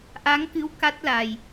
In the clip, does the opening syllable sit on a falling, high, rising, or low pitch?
rising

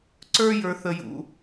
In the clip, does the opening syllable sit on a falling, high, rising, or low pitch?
high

